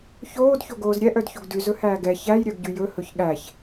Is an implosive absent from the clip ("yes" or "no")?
no